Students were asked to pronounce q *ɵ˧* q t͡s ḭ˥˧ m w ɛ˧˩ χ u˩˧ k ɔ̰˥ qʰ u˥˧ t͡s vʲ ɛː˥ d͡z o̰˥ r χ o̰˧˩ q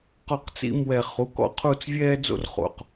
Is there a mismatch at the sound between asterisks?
yes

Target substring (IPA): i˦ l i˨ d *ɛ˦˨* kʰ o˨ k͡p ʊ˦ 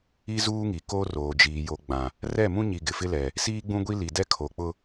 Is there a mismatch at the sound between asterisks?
yes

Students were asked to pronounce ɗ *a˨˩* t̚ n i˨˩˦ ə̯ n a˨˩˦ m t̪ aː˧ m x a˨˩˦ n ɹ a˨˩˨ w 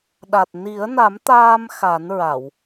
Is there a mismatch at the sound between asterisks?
no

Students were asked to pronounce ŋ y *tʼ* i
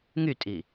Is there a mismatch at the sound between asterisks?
no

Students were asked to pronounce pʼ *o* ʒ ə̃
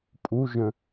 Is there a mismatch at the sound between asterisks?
yes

